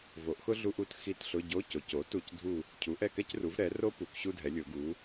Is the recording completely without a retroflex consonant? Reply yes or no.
yes